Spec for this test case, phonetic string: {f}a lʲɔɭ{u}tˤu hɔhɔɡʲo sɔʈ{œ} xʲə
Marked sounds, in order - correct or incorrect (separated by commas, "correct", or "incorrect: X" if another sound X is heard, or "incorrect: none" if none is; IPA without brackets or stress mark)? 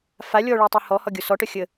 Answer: correct, correct, correct